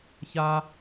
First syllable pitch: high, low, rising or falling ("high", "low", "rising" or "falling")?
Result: high